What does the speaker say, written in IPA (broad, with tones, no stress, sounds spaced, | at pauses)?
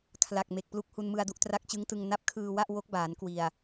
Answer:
kʰ l a˨˩ k̚ m e˨˩ k̚ p l u˦˥ k̚ h u˧ n m ɯ˧ a̯ d u˥˩ ʔ t r a˦˥ k̚ t͡ɕ ɯ˦˥ ŋ t ɯ˧ ŋ n a˦˥ p̚ kʰ ɯː˧ w a˥˩ ʔ w o˦˥ k̚ b aː˩˦ n k w i˨˩ a̯